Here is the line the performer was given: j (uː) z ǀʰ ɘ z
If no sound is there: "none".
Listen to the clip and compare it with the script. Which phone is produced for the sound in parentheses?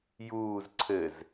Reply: uː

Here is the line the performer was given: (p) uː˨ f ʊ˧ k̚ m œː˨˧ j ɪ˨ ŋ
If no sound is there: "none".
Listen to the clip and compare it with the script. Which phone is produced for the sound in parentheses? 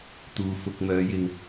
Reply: t̪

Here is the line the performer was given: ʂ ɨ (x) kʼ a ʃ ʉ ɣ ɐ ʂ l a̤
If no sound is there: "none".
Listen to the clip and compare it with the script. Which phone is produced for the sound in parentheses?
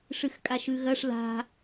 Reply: x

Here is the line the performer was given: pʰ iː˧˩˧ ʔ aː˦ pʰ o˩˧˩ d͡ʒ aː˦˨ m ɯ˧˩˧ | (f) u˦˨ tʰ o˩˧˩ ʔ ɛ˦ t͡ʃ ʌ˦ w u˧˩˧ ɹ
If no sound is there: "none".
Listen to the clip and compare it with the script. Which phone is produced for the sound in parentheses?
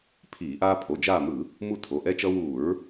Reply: m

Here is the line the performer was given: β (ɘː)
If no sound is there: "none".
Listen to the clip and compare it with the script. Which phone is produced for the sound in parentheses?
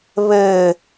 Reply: ɘː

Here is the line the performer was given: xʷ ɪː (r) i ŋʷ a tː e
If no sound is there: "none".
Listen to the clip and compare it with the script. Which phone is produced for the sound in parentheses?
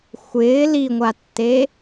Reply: l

